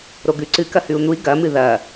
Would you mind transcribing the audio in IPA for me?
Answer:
ɾ o ɡ ʉ ǀ ɨ k ɐ h ʉ u̯ n̪ u i̯ ɡ ɐ m ɨ ð ɐ

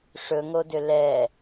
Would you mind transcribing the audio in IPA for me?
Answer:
ʂ ɵ ŋ o d ʏ l ɛ

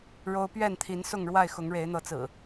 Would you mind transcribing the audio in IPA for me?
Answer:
ɻ o˦ ʊ̯ p ɥ ɛ˥˨ n t̪ʰ i˨˦ n s ʊ˥˨ ŋ ɻ w a˥˨ ɪ̯ x ʊ˨˦ ŋ ɻ e˨˦ ɪ̯ n̪ ɤ˨˦ t͡s ɹ̩˨˩

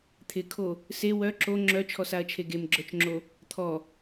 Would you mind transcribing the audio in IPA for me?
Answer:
t̪ʰ ɪ kʰ o | s e w œ ǁ o ŋ͡ǁ œ t͡ʃʰ ɔ s a ɐ̯ t͡ʃʰ e ɡ e m ɡ͡ǁ œ t͡ʃ ŋ͡ǁ o | t̪ʰ ɔ

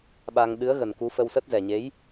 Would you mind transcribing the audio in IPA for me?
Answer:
ɓ a˧ ŋ ɗ ɨ˨˦ ə̯ ɣ ə˨˩ n k u˨˦ f ə˧ w s ə˦˥ t̚ z ɛ˨˩ ɲ e˨˦ j

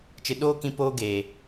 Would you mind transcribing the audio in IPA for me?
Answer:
t͡ʃ ɨ˨ ɗ oː˦ k ĩ˧ p oː˧ ɡ e˨

